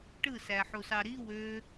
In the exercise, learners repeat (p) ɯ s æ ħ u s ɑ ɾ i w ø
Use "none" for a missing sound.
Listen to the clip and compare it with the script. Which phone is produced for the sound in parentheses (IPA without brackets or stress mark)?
ʈ